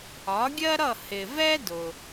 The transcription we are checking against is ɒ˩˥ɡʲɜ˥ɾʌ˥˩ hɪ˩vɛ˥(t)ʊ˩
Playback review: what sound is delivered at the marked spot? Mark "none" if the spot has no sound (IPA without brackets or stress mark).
d